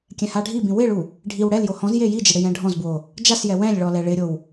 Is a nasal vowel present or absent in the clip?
present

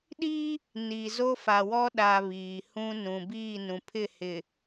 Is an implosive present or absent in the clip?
present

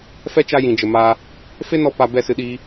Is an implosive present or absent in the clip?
present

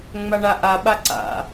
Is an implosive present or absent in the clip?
present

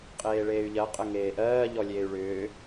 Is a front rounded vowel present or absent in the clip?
present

